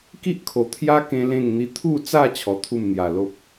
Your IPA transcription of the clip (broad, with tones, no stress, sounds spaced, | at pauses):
k i˦ ʔ kʰ o˨˩ t̪ʰ j a˦ k ẽ˦ l ẽ˥˧ ŋ n̪ i˦ t̪ʰ u˥˧ t͡s a˥˧ t͡ɕʰ ɔ˧ t̪ʰ u˥˧ m n̪ j a˨˩ l o˦ p̚